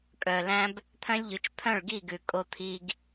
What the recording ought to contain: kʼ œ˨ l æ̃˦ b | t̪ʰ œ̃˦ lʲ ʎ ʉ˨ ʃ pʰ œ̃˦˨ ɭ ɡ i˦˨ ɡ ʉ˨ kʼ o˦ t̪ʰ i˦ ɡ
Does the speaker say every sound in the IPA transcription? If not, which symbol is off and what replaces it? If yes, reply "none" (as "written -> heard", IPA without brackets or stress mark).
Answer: ʃ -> t͡ʃ